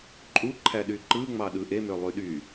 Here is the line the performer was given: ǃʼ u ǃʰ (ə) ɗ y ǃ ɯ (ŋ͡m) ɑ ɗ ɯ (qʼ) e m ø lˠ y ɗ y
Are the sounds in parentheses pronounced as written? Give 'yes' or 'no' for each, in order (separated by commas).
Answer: no, yes, no